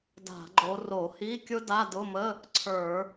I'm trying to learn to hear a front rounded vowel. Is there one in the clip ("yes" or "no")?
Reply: no